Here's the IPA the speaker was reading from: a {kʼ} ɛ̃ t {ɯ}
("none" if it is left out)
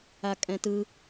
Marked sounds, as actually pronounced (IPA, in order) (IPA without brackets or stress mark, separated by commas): kʼ, ɯ